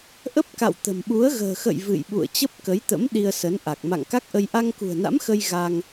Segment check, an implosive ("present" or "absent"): present